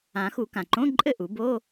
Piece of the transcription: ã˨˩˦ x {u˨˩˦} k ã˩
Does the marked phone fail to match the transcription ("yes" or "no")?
no